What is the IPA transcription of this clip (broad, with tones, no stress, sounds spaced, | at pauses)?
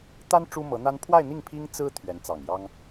t̪ a˥ n ʈ͡ʂ u˥ m ɤ˧˥ n̪ a˥ n pʰ w a˥˧ ɪ̯ n̪ i˥˩ ŋ pʰ i˥ ŋ t͡s ɹ̩˥ t̪ʰ ɥ ɛ˧˥ n t͡s ɑ˨˩ ŋ j ɑ˥ ŋ